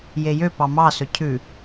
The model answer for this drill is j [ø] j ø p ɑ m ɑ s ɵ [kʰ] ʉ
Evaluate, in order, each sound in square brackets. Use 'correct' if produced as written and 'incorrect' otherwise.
incorrect: e, incorrect: cʰ

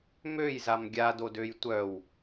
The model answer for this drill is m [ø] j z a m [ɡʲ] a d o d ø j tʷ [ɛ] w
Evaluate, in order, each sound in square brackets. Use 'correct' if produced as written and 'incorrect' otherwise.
correct, correct, incorrect: œ

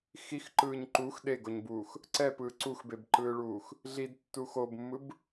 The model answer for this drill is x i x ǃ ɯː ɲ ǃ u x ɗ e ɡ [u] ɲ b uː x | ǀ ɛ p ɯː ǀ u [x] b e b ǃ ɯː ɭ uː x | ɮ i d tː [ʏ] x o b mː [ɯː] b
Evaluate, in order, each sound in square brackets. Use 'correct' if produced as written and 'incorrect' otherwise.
incorrect: o, correct, incorrect: u, incorrect: ɯ

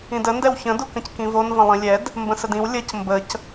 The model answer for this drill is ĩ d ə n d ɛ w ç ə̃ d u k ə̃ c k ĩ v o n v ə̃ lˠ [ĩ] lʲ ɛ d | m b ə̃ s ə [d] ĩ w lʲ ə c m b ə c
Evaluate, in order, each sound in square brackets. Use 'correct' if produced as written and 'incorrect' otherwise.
correct, correct

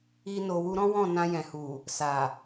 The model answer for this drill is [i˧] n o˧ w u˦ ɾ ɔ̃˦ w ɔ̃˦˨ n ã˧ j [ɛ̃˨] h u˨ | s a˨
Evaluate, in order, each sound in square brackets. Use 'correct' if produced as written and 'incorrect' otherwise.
incorrect: i˦, correct

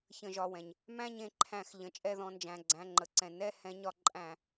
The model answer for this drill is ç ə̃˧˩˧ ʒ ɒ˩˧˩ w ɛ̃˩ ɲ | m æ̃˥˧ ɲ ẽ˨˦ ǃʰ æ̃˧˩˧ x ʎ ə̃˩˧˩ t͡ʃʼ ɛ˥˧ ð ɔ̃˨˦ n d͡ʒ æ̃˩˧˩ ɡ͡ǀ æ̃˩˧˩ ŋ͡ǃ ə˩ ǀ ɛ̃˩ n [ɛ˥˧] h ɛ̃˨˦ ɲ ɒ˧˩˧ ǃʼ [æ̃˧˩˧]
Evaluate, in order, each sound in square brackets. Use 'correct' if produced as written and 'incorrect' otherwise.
correct, correct

